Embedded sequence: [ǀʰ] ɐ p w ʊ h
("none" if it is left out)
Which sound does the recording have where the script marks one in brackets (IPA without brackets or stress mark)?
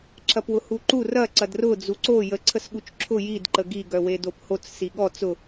ǁʰ